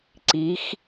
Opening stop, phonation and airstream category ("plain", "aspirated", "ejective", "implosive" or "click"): click